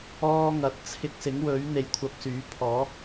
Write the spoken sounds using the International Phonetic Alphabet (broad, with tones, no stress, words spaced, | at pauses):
ɔː˥ŋɐ˨t̚ t͡sʰɪ˧k̚sɪ˨˥ŋwɵ˨˥ɥ n̪e˨jkʷʰɐ˧p̚syː˨˥pʰɔː˨˥